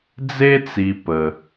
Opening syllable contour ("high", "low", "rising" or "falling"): high